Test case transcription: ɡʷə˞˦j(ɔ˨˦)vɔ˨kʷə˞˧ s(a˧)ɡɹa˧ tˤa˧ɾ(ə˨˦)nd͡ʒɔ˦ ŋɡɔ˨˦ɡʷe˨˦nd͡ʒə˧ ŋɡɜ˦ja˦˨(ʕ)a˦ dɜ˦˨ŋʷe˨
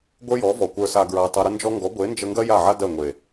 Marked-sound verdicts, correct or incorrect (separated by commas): correct, correct, incorrect, correct